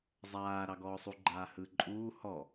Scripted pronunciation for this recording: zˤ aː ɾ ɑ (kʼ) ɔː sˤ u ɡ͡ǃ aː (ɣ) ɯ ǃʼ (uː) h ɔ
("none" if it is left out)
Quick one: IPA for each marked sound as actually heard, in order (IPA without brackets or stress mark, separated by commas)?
ɡ, h, uː